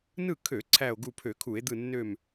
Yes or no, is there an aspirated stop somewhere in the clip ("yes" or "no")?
yes